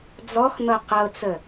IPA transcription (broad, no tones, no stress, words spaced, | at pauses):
d͡zɔxn̪ɤ qɤt͡sə